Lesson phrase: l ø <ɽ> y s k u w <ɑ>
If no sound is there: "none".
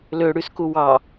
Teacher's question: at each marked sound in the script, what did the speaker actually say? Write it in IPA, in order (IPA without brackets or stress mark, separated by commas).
ɽ, ɑ